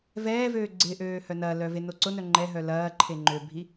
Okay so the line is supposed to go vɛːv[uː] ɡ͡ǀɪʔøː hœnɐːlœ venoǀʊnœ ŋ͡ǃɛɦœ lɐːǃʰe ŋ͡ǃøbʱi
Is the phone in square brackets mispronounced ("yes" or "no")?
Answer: yes